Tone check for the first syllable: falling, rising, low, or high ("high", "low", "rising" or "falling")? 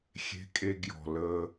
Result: low